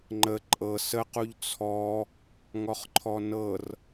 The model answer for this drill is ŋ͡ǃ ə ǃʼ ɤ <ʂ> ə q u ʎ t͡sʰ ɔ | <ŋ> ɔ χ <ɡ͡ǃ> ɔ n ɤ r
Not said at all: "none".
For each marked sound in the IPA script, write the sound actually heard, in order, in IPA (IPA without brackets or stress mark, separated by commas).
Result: s, ŋ, ǃʰ